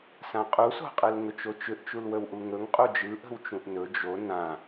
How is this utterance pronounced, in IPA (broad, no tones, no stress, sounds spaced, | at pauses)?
s ã qʼ u s o̤ qʼ ɯ l ŋ ɵ t͡ʃ o t͡ʃ ʏ ʔ t͡ʃ u l w ə w ʔ u ŋ ɵ ŋ qʼ u d͡ʒ ɯ ʔ ə̤ w t͡ʃ ũ ʔ n ɵ d͡ʒ o n ã